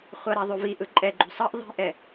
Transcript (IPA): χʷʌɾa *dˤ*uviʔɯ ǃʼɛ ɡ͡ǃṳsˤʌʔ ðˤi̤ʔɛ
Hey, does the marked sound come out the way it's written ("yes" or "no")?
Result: no